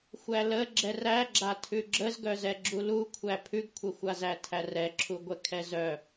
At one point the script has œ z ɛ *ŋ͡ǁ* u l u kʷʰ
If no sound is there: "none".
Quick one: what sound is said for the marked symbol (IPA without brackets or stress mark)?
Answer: ɡ͡ǁ